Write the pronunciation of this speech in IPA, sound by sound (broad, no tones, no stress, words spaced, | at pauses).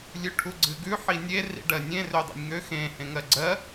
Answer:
lʲʉʈʰuɡ͡ǀɨɡʉ ħinʲe rḭɖɜnʲẽ rødˤḛnʲŋø xẽ hẽŋɜɡ͡ǀɜ